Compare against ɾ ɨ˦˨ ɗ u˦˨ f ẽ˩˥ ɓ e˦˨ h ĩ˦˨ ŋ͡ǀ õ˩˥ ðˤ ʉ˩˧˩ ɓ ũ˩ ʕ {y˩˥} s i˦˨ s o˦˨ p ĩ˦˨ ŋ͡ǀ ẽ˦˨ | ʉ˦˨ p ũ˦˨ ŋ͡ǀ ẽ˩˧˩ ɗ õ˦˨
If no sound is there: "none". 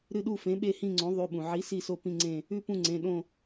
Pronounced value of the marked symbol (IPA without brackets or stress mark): i˩˥